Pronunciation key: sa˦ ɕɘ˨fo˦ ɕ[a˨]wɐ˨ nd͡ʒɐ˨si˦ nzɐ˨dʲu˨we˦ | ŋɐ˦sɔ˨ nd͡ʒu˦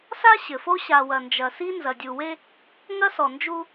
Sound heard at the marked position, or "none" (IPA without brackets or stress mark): a˨